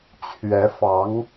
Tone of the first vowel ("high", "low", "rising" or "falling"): rising